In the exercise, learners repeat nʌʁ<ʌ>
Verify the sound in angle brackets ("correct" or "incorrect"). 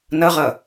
correct